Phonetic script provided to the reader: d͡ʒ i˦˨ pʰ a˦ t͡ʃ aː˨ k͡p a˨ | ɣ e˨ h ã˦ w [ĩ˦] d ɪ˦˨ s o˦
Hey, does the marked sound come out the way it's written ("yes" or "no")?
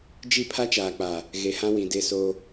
no